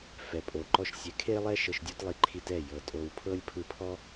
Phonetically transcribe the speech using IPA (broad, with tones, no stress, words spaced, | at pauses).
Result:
fɛ˨pʼo˨ǃɔ˧ʃ sʲɛ˨˦kʰe˦lˠɛ˦ ʃɤ˧ʃdʲo˦tlˠi˧ ǃʰi˧tɛ˦˨ jɤ˨tʼo˧w pʰɤ˦lʲpʰɯ˧ pʰɔ˦